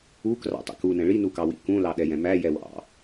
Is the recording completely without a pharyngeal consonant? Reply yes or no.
yes